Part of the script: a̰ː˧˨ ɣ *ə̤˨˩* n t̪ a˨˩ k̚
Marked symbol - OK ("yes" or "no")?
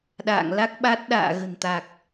yes